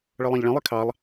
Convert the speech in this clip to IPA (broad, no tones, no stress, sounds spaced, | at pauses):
ɭ ɤ lˠ ɑ̃ ʎ ɭ ĩ lˠ i kʰ ɑ lˠ